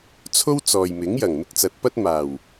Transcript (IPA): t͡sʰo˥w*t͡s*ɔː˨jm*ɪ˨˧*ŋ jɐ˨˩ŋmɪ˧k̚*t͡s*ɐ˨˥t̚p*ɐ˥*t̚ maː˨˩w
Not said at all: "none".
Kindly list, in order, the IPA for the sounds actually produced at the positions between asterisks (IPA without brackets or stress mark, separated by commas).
t͡s, ɪ˨˥, t͡s, ɐ˥